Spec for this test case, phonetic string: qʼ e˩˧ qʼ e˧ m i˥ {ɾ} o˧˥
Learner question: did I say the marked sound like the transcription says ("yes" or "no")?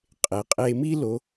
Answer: no